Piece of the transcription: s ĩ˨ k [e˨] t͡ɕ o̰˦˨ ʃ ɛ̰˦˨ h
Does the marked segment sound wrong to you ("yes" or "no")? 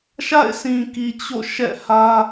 yes